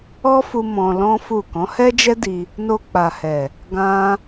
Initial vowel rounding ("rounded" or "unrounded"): rounded